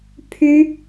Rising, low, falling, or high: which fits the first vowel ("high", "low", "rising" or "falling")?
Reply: high